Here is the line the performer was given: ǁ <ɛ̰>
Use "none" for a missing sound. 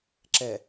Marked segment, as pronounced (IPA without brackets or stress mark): ɛ